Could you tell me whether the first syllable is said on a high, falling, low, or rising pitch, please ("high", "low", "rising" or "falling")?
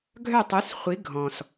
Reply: falling